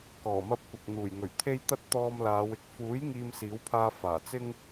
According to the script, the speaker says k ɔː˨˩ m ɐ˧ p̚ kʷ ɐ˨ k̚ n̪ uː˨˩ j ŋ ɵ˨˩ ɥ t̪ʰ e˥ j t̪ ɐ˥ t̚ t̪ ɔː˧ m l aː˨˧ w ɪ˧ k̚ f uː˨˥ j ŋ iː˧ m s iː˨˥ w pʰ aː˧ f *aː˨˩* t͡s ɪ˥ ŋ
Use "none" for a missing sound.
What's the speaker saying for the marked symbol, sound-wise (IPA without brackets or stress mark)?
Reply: aː˨˩